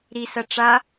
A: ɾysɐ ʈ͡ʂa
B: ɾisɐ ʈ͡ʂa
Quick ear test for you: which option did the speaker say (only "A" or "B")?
B